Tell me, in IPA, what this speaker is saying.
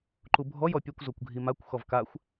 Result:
ǃubʱɔj ɔpʲɛkʷ zokʷɡʱimakʷ xɔvkaxʷ

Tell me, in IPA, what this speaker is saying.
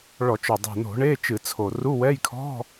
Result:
ɭɔ˧˩˧t͡ʃɔ˨˩ dˤɛ̤˨˩no̤˧˩˧ɳe˧˥˧ t͡ʃɨ˧˩˧t͡sʰo˨˩ ru˧˥˧wɛ˧˥˧j kʰɔ̤˧˥˧

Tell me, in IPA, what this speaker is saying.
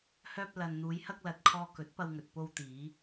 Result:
hœː˧p̚ lɐ˨nn̪uː˨˧jhɐ˧k̚lɐ˨t̚ kʰɔː˧kɵ˨˥t̚pɐ˧wŋɵ˨t̚ po˧wt̪iː˨˧

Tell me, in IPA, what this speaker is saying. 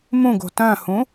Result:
mũɡ o̤tœ̃hũ

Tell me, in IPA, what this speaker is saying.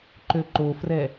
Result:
ǃøǃofrɛ

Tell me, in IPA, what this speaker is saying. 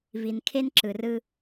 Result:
vi˨nkʰe˦nǁɯ˨ rɯ˦

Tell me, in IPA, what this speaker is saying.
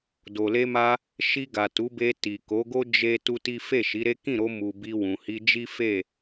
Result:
do˨le˧ma˧ | ʃi˧ɡa˨ tu˨˦be˧ti˨ ko˨˦ɡo˦ d͡ʒe˦ tu˦ti˦ fe˦˨ʃi˨˦ɾe˦ kĩ˦˨ɾo˧ mu˨bi˧ wũ˨hi˧ d͡ʒi˦fe˦˨

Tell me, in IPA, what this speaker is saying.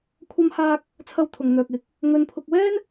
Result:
kʷʰɐ˥mhaː˥k̚ | t͡sʰɐ˥wt̪ʰʊ˧ŋn̪œː˧k̚ɪ˨˥k̚ | ŋɵ˧npʰʊ˧k̚wɛː˥n

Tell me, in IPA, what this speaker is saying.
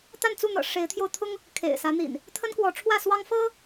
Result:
t̪a˥˨nt͡su˥˨n̪ɤ̰˨˩ ʂe˨˦ɪ̯t̪ʰjo˧ʊ̯t̪ʰʊ˦ŋ | kʰḛ˨˩ɪ̯ sä˨˦n̪ḭ˨˩n | t̪ʰə˦nkwɔ˨˦ʈ͡ʂʰwä˥˨swɑ˦ŋ fɤ˦

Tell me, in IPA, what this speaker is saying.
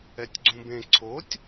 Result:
ɛtʲɡ͡ǀũbẽ ǀʰotʲ

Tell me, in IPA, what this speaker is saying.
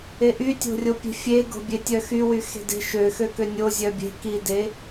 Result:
eʔytʲo̤rʲo pʲe̤fʲeɡo̤bʲe tʲœxywy xe̤de̤ ʃø xøkønʲo zʲœbʲe̤ kide

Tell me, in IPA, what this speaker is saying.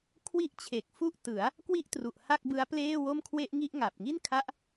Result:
kʰwi˥˩ʔt͡ɕʰe˨˩k̚fu˥˩ʔ tɯ˩˦a̯ | kwi˥˩ʔtru˨˩ʔ ha˥˩k̚bɯ˦˥a̯pleː˥˩ wo˥˩mkʰwe˥˩ʔŋi˥˩ʔ ŋa˨˩p̚ŋi˥˩nkʰa˦˥ʔ

